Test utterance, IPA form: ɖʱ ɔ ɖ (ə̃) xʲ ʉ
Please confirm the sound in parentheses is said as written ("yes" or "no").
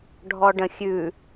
yes